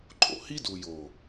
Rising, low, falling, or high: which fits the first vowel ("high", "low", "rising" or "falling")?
low